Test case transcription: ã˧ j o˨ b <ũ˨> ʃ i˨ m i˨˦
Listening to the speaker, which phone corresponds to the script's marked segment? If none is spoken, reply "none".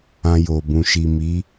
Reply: ũ˨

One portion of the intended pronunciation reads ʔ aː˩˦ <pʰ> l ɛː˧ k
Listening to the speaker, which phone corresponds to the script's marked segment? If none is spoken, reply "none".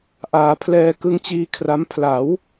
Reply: pʰ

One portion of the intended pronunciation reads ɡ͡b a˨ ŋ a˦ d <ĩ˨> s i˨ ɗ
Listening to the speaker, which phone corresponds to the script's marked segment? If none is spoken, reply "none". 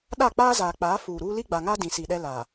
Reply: ĩ˨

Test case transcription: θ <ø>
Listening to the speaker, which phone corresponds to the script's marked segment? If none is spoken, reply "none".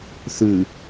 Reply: ʉ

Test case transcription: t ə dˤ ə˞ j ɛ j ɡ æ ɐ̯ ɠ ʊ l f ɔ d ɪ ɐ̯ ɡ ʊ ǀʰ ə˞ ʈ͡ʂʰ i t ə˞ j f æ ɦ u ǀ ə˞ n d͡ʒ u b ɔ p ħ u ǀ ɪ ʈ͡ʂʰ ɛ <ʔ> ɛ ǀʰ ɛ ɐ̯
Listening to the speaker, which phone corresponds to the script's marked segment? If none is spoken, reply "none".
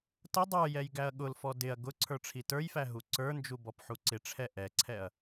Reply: ʔ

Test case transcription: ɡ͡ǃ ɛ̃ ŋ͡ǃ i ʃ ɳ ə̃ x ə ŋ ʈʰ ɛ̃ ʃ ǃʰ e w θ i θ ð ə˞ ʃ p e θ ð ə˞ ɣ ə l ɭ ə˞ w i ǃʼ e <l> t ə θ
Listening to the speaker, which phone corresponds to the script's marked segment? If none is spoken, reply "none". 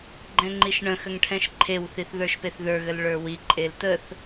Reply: l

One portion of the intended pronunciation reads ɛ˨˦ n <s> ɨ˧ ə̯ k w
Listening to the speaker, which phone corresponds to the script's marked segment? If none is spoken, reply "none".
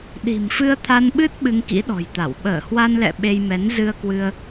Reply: z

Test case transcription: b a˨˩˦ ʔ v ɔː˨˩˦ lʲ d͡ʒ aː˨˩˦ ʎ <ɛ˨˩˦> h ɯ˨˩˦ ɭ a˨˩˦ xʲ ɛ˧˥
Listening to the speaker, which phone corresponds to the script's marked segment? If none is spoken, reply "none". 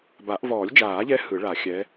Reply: ɛ˧˥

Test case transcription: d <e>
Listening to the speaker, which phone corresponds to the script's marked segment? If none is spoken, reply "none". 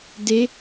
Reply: e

